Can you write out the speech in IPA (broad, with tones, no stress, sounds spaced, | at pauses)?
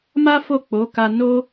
m a˦ f o˦˨ k͡p o˨˦ k a˧ n o˦